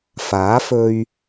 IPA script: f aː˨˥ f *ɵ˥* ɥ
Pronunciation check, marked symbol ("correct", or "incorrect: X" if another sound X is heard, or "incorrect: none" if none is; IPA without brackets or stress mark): incorrect: ɵ˧